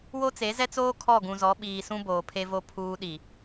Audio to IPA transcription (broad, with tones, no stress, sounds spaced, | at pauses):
w o˦ t͡s e˨˦ z ɛ˦ t͡s oː˦ kʰ ɔ˦˨ ɡ ũ˨ z ɔ˨˦ ɓ iː˨ s ũ˦ b oː˨ pʰ e˦ v o˦ pʰ uː˦ ɗ i˨